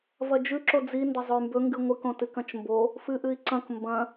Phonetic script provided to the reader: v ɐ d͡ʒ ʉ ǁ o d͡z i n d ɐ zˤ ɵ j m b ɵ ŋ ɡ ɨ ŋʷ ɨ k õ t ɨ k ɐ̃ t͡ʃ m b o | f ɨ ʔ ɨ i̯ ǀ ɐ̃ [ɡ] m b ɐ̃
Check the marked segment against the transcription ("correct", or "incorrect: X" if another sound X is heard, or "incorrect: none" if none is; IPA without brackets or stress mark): incorrect: k